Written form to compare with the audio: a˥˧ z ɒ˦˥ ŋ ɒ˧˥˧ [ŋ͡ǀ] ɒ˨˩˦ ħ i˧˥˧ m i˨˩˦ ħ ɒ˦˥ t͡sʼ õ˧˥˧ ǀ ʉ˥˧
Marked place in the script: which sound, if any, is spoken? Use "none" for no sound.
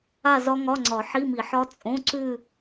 ŋ͡ǀ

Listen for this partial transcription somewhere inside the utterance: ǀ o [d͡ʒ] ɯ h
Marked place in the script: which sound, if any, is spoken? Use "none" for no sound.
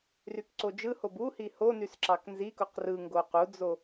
d͡ʒ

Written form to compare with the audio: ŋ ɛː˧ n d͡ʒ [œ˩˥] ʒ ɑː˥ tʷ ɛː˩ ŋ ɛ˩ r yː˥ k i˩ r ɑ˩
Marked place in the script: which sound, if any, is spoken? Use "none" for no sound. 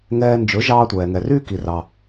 ɵ˩˥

